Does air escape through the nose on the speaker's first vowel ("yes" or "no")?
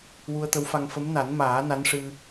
no